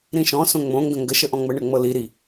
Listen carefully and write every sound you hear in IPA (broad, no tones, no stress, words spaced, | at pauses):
ɾĩʃɔ̃ sõŋ͡mõŋɡə̃ ŋɡəʃəʔɔ̃ ŋ͡məɳɤ ŋ͡mɤli ɾi